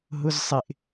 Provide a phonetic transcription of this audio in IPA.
ɦ ʊ z sˤ ɪ ʔ

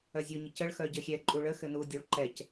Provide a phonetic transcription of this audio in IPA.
œ zʲ u ɲ ə c ə ɭ x œ ɟ ɘ xʲ ɛ ǃʼ u ɭ ə x ɘ n u dʲ o ɭ ǃ ɛ c

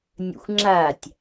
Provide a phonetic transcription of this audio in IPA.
nʲ ə̰ xʷ ŋ͡ǁ a tʲ

